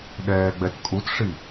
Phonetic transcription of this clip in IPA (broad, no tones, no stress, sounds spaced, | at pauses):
ɗ ɛː ɡ͡b ɛ t kʼ u t ʂ i